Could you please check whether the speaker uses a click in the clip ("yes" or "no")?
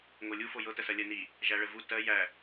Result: no